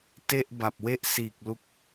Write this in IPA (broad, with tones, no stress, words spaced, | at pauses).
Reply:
te˥˩ʔba˨˩p̚we˥˩ʔ siː˨˩k̚ lu˥˩k̚